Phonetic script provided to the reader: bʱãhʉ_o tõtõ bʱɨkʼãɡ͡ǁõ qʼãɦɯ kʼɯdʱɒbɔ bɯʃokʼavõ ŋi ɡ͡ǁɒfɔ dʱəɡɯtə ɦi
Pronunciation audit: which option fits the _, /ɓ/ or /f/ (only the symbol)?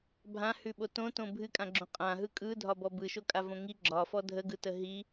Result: ɓ